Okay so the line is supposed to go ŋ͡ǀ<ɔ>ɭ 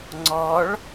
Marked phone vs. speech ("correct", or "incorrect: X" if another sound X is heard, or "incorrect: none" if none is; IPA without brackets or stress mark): correct